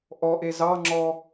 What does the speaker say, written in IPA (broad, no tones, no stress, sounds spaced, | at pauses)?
ʔ ɔ ʔ e z ɑ ŋ͡ǁ ɔ